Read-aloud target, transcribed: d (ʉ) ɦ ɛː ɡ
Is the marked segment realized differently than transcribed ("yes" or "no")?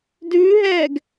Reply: no